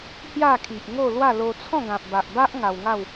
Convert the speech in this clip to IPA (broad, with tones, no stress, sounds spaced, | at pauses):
h j a˥˧ kʰ i˨ ʔ ŋ o˥˧ l w a˥˧ l o˧ t͡sʰ ɔ̃˥˧ ɡ ã˨ p̚ b a˨ ʔ b a˦ ʔ ŋ a˧ w ŋ a˥˧ w